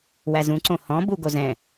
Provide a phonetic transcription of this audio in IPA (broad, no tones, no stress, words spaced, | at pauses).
wæzũǀõ hɔ̃ buɡozɛ̃